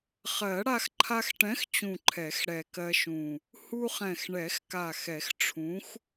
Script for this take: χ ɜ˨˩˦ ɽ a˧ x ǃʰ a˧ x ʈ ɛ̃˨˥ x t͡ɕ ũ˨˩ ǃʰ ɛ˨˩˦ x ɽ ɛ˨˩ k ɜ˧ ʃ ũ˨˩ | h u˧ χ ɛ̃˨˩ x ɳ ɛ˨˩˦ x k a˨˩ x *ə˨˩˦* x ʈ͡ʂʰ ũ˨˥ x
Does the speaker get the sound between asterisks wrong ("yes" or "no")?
yes